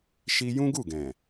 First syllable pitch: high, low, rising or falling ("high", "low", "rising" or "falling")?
high